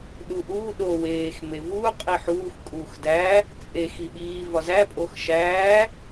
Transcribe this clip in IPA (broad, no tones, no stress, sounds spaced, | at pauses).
ɗ u ʔ uː ɗ o w eː x m e v uː qʼ i ħ uː x kʼ uː x d æː | t͡sʼ e x i ɓ iː v ɒ z æ pʼ o x ʃ æː